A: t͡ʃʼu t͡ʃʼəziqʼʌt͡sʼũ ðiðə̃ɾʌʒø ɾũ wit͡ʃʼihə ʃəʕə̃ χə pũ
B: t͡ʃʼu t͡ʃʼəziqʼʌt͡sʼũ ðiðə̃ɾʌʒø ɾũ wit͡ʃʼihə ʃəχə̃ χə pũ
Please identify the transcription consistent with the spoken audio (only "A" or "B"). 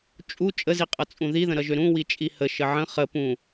A